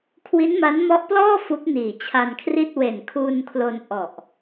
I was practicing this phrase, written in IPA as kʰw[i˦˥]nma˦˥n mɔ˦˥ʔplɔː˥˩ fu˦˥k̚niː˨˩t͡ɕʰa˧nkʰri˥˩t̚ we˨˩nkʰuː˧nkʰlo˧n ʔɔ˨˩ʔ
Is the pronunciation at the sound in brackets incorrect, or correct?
correct